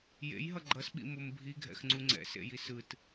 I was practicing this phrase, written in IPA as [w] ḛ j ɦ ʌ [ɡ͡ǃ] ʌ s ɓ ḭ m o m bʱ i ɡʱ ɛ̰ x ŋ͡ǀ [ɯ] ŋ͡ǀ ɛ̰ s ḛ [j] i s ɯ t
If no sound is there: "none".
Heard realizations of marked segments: j, ɡ͡ǃ, u, j

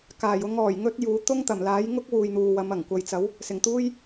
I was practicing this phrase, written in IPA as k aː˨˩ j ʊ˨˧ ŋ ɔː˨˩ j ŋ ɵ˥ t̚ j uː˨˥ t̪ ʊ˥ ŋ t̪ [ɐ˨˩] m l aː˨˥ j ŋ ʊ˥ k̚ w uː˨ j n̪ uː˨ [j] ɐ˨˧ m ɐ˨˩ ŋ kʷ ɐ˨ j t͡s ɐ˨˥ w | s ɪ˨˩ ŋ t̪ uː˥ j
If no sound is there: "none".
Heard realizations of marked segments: ɐ˨˩, w

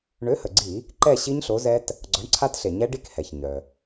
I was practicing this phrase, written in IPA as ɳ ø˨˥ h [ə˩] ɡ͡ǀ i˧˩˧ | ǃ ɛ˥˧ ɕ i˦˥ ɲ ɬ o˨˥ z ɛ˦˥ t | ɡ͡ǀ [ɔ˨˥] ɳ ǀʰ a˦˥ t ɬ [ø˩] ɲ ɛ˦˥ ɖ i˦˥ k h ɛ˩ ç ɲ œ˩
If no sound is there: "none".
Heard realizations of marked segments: ə˩, ɔ˨˥, e˩

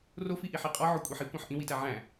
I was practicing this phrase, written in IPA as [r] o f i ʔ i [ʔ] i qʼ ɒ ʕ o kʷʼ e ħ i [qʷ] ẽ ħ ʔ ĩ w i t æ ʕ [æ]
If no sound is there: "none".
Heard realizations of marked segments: r, ħ, kʷ, æ̃

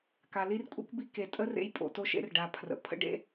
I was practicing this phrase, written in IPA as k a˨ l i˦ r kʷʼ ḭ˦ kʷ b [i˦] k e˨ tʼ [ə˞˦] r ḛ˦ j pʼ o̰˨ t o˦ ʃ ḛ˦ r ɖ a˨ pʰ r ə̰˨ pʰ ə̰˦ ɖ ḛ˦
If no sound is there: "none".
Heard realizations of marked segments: i˦, ə˦

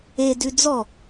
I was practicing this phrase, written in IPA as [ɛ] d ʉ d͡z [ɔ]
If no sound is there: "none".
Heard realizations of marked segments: e, ɔ

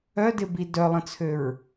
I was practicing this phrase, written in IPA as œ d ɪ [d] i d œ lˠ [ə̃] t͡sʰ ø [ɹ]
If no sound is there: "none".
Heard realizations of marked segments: b, ə̃, ɹ

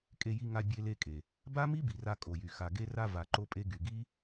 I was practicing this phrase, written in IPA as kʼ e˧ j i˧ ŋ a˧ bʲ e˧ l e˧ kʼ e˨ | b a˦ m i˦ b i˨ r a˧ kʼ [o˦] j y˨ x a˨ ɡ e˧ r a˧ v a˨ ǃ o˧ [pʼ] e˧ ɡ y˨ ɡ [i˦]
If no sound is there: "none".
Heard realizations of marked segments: o˨, pʼ, i˦

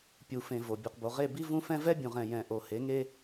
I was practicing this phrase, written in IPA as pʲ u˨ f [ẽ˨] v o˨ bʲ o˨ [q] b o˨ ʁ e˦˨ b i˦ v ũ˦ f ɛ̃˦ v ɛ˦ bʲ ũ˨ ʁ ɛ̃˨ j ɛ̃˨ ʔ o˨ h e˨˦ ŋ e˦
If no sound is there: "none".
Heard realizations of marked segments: ẽ˨, q

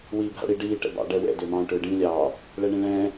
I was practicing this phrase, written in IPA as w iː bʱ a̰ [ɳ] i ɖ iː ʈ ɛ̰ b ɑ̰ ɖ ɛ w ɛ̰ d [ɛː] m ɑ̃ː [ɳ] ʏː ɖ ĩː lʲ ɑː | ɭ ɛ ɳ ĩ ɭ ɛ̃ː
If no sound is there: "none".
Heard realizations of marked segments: ɽ, ʏː, ʈ

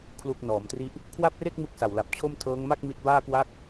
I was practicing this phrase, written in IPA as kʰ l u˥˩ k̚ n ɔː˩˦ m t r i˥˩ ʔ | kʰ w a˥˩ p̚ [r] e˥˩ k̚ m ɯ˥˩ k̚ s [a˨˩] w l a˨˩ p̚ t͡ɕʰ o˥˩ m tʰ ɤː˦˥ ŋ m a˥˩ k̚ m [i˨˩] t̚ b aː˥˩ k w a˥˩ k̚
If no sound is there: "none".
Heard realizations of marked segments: r, a˨˩, i˦˥

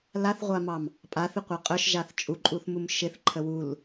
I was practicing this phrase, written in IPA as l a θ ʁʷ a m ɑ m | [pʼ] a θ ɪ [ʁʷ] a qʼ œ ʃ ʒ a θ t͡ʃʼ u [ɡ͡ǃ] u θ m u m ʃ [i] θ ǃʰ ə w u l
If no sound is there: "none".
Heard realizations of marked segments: pʼ, qʷ, ǃʼ, ɪ

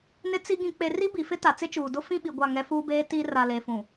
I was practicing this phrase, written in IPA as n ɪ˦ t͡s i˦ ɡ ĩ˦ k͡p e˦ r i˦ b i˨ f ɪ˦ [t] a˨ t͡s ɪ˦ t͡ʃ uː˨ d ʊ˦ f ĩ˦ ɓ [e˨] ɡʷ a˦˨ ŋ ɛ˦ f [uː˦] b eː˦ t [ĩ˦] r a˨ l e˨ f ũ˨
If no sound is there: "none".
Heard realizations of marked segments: t, i˨, uː˦, i˦

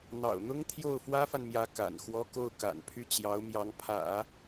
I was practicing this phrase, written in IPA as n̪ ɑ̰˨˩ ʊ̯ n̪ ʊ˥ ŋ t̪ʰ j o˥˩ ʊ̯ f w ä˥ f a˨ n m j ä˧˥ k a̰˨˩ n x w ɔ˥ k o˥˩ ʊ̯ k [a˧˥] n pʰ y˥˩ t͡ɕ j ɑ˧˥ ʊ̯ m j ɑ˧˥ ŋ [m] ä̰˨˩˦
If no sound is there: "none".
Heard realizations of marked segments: a̰˨˩, pʰ

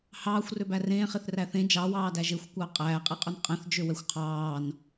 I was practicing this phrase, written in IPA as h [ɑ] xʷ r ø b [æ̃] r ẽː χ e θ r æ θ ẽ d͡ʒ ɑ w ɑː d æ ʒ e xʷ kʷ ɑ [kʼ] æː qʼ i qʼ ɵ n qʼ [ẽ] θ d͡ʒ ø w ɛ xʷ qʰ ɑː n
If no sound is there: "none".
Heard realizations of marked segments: ɑː, æ, qʼ, ɛ̃

